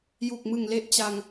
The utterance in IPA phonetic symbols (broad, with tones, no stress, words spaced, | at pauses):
ju˨˩k̚mɯ˨˩ŋle˦˥ʔ t͡ɕa˧ŋ